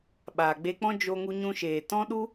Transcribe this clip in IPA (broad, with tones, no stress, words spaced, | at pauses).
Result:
ɓaː˨ɡ͡be˧k͡pɔ̃˦ d͡ʒo˧ŋu˧ɲũ˧ʃeː˨ tɔ̃˦ɗu˦